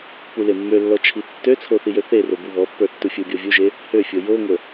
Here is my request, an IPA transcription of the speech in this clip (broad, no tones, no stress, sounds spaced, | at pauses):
p u l e mː ø lː ɔ t͡ʃʰ i tː ø t͡sʰ o θ i j ø θ e r o b u β ɔ pː ə˞ tː u fʲ u bʲ ɔ vʲ u ʒ e | h ø fʲ o j o ŋʷ ə